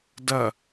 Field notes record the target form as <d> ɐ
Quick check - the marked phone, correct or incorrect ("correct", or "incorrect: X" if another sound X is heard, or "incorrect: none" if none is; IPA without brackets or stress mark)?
correct